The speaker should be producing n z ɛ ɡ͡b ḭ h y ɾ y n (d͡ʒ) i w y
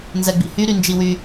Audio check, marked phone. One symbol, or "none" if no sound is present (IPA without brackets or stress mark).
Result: d͡ʒ